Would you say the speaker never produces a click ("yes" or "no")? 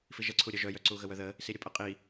no